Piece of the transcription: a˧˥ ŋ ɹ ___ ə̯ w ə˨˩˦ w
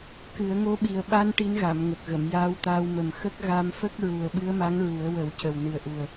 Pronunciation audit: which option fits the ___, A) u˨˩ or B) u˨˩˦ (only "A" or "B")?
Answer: B